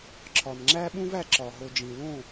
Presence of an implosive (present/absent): present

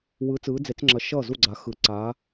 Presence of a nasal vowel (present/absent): absent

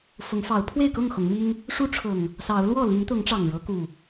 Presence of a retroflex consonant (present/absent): present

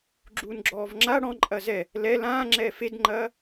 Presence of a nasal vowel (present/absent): present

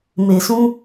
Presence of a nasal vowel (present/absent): present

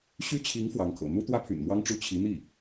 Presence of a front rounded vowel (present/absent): present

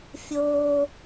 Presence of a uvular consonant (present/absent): absent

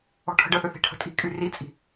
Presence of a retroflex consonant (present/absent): present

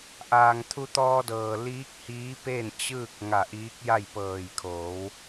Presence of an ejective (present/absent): absent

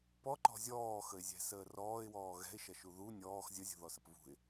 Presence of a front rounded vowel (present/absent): absent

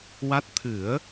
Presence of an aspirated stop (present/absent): present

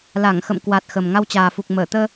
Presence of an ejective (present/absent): absent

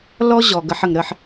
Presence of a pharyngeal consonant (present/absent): present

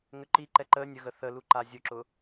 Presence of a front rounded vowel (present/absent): present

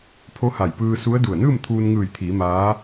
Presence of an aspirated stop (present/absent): present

